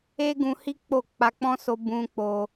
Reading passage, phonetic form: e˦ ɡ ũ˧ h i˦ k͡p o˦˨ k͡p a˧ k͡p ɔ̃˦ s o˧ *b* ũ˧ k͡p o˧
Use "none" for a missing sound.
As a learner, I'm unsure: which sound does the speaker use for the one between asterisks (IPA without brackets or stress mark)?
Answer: b